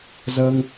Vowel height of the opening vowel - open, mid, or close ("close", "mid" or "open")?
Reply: mid